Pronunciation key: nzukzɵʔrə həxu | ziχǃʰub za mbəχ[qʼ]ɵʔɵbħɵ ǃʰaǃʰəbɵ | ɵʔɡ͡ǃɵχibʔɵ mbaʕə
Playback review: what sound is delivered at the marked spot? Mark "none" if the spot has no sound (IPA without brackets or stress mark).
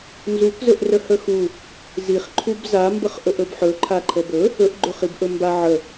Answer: ʔ